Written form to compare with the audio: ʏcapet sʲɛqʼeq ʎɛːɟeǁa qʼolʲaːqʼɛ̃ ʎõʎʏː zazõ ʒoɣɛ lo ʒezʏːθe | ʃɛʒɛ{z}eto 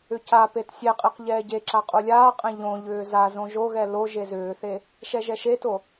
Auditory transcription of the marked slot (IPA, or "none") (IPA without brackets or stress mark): ʃ